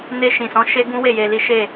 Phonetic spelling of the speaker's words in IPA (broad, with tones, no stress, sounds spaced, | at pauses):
n e˧ ʃ ĩ˨ s ɔ̃˨˦ ʃ e˦ ɡ ũ˦ w e˦˨ j e˧ l i˦ ʃ e˦˨